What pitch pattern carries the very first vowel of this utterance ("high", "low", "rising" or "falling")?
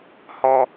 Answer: high